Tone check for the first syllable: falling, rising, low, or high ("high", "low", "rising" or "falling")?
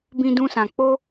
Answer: high